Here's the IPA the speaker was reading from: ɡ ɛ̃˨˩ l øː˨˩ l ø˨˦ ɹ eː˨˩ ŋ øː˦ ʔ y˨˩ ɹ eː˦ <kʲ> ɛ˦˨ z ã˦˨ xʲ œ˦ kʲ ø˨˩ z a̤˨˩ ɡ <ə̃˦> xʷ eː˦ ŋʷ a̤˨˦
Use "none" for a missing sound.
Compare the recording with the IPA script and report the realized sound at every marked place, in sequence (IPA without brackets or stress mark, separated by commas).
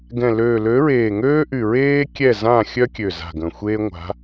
kʲ, ə̃˨˩